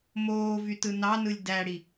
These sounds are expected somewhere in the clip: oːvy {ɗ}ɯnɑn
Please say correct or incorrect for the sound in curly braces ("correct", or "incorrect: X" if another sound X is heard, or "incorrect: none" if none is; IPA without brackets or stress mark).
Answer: incorrect: t